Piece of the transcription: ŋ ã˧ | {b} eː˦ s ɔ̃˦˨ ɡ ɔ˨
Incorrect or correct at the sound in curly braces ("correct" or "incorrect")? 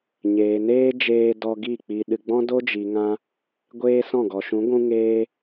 incorrect